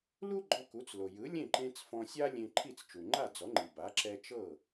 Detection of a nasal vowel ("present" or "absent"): present